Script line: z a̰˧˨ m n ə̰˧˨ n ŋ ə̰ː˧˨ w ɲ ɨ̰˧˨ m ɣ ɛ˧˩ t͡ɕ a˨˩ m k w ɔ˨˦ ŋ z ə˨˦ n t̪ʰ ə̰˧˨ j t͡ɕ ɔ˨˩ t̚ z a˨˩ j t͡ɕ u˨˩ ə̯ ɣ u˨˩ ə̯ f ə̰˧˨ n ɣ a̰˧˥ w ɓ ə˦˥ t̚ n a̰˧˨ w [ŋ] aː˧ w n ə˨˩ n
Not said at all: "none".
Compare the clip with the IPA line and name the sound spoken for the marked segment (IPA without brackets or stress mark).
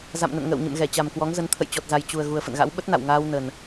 ŋ